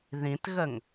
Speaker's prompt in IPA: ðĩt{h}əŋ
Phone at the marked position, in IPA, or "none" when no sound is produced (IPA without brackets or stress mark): ɣ